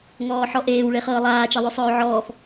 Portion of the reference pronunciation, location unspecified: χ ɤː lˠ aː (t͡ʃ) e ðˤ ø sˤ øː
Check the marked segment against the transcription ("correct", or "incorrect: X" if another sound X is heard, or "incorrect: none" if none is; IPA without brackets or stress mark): correct